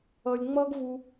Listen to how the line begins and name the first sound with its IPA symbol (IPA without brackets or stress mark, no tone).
ʌː